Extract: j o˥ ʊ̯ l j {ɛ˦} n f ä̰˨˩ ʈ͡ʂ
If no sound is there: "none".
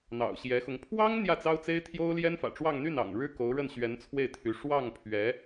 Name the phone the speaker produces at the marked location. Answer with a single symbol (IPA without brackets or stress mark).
ɛ˥